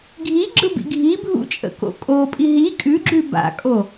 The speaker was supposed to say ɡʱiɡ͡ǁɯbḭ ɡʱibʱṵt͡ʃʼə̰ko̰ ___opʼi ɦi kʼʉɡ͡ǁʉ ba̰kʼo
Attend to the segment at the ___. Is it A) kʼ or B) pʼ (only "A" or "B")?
A